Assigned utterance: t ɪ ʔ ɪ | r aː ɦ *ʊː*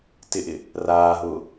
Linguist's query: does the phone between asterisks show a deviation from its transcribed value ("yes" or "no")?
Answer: no